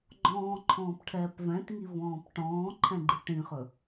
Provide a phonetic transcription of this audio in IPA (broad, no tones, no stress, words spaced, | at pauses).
ɡ͡ǃɔ̃ːǃʰɔ̃ːpʈʰɛːp vɛ̃tŋivɔ̃ːp ʈɔ̃ːǃʰɛ̃ɡ͡ǃi ʈĩχɵ